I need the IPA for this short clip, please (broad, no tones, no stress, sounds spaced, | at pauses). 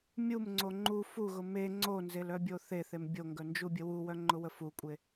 mʲ u m ŋ͡ǀ o ŋ͡ǃ u f u ɣ ʊ m e ŋ͡ǀ o n z e l œ bʲ o θ e θ e m bʲ o ŋ ɡ œ n d͡ʒ u bʲ ə w u w œ ŋ͡ǃ ʊ w ə f u kʷʼ e